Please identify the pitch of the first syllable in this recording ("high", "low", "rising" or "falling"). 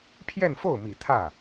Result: falling